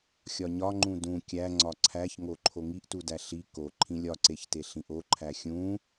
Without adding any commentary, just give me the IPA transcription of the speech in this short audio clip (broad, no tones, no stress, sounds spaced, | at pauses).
xʲ ɒ ɲ ɒ ŋ͡ǃ ũ d ũ kʲ æ ŋ͡ǀ ɒ ǀʰ æ ç ŋ o ǃʰ o ŋ i ʔ t u d æ ɬ i k o ǃʰ ĩ lʲ ɒ ǀ e ç t e ɬ ĩ ʔ o ǃʰ æ xʲ ũ